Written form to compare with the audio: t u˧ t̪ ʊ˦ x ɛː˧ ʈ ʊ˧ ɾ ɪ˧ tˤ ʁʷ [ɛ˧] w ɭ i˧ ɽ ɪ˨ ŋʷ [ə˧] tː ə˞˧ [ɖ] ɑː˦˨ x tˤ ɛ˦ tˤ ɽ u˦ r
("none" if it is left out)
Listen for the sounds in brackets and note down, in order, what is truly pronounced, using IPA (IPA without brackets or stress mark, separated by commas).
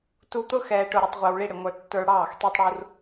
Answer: ɛ˧, ə˞˧, ɽ